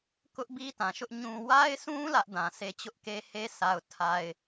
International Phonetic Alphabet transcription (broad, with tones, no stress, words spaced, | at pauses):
kʊ˦ʔbi˦ tã˨ʃʊ˦ʔ ɲũ˨wa˦ɪ̯sũ˦ lä˦ʔdã˨sʰe˦ t͡ɕʊ˦ʔke˦ he˦sʰa˨ʊ̯tʰa˨ɪ̯